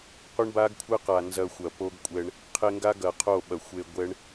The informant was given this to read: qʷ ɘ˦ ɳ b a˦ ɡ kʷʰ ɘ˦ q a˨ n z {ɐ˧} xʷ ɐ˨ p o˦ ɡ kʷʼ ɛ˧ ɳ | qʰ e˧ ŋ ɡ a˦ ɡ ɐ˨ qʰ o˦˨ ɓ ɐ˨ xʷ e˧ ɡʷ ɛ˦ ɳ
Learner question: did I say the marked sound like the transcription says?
yes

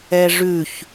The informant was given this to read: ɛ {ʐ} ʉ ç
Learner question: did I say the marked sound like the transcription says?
yes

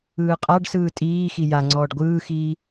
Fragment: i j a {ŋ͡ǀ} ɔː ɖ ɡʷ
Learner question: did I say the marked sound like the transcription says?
yes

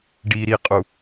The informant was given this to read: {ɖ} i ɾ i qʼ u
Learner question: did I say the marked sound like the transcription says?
yes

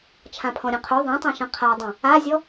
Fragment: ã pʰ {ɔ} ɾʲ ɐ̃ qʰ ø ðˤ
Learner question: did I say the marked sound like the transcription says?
no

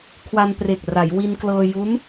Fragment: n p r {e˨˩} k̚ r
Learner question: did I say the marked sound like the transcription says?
yes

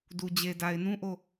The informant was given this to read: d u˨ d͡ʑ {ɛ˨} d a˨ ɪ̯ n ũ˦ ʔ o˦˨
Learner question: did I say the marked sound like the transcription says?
no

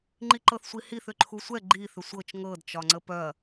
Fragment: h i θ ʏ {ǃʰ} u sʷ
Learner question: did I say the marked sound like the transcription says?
yes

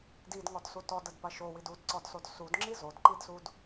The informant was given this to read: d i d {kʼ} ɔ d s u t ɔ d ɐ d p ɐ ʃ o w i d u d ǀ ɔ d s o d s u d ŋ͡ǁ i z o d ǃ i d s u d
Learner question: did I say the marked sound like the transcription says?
no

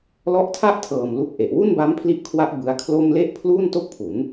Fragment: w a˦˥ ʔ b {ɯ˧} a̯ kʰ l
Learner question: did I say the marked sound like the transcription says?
no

